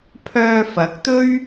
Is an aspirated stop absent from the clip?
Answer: no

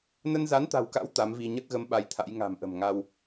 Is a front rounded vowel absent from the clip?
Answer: yes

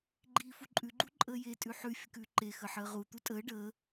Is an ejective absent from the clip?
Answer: no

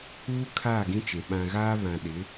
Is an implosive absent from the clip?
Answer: no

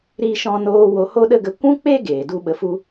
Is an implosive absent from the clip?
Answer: no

